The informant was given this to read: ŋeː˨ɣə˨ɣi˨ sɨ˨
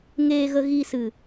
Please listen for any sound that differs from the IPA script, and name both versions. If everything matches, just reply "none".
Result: none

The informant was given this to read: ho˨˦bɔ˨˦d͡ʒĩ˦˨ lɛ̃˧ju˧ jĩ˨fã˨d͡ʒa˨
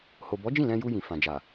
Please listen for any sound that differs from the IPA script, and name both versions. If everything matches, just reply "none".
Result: o˨˦ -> o˨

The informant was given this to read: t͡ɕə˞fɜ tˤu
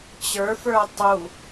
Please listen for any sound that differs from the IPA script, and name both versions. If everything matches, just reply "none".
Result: ɜ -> ə˞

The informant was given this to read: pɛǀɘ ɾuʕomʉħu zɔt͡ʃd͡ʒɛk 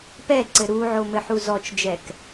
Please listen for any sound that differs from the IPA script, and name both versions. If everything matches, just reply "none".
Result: ʉ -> ɘ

